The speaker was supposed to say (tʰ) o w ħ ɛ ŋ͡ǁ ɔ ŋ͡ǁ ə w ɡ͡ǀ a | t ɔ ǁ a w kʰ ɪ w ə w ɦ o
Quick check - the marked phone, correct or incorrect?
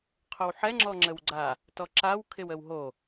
incorrect